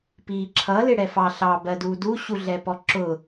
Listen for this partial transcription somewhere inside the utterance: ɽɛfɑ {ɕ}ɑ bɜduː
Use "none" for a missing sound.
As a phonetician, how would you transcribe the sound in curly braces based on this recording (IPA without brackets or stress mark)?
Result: ɬ